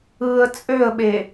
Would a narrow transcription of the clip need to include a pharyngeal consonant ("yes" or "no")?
no